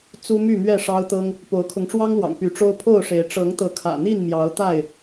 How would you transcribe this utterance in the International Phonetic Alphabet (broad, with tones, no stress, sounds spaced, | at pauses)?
t͡s u˦ m y˥˨ m ɥ ɛ˥˨ ʂ ɑ˦ ʊ̯ t̪ ɤ˦ ŋ | p o˨˦ ʊ̯ kʰ ʊ˨˦ ŋ ʈ͡ʂ w ɑ˦ ŋ l w ɑ̰˨˩ ŋ p y˨˦ ʈ͡ʂ o˦ ʊ̯ pʰ o˥˨ ʊ̯ ʂ e˨˦ ɪ̯ ʈ͡ʂ ɤ˨˦ ŋ t̪ ɤ˨˦ kʰ ä̰˨˩ n̪ i˥˨ n m j ɑ˨˦ ʊ̯ t̪ a˥˨ ɪ̯